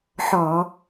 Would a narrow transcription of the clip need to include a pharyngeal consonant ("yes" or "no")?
yes